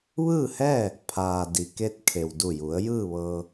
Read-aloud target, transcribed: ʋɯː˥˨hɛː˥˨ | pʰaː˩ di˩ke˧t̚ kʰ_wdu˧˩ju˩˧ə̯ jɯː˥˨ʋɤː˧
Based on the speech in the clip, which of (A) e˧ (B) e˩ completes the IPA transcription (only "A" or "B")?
B